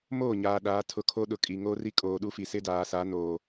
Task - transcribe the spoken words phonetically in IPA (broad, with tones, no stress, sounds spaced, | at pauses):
m oː˦˨ ɲ aː˨ ɗ aː˨˦ tʰ ʊ˨ kʰ o˦ ɗ ʊ˨ kʼ i˨ ŋ oː˦ r i˦ kʼ oː˨ ɗ u˦ f i˨ s ɪ˦ d aː˨ s a˨˦ n oː˨